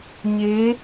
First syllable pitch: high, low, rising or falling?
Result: rising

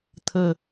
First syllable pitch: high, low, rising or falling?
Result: low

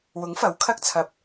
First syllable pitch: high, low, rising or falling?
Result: rising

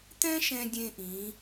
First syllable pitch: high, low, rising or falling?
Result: high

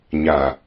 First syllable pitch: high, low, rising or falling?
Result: low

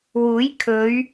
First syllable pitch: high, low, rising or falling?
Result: rising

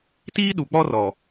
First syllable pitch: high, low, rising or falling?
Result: high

